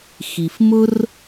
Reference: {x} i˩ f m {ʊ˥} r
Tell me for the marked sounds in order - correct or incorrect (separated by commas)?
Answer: correct, correct